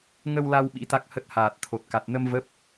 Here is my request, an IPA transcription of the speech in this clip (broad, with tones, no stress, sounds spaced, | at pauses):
ŋ ə˧ w l a˧ w ɓ ḭ˧˥ t̪ a˦˥ k̚ h ə˦˥ t̚ h aː˨˩ t̚ t̪ʰ o˨˩ t̚ k a˨˩ t̚ n ə˧ m v ə˦˥ p̚